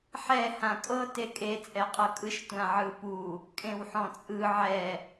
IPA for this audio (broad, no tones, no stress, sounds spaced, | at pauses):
ħ ɛ h ã kʼ ɤ t e kʼ e t͡sʼ ɛ qʼ ɤ kʼ ɯ ʃ tʷ ã ʕ ɯ p u | kʼ ẽ w ħ ɔ̃ t͡sʼ ɯ ʕ ɛ